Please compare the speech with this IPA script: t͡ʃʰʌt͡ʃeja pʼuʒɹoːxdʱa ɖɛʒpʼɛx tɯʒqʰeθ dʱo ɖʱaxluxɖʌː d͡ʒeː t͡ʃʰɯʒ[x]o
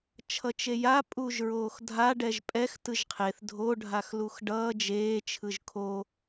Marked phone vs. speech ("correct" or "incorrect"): incorrect